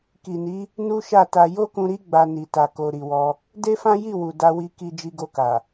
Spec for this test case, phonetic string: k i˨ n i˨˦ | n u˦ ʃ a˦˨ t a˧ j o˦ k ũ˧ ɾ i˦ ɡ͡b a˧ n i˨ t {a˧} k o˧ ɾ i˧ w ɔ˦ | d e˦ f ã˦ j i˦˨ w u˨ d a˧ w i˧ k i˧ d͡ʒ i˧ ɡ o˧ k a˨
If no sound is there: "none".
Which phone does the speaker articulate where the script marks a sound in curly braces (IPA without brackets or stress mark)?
a˧